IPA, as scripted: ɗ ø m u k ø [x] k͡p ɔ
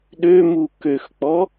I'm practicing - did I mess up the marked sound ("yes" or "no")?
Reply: no